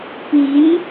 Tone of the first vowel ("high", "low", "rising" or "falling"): rising